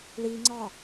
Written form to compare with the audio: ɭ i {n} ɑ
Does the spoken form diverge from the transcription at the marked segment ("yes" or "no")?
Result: yes